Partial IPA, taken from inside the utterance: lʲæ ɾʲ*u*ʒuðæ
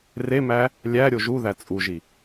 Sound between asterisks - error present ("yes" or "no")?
yes